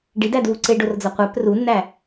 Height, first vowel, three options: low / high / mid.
high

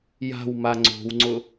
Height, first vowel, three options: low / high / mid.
low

